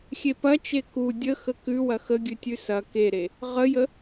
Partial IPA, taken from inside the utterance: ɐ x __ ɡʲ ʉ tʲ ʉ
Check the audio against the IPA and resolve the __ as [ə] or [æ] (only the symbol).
ə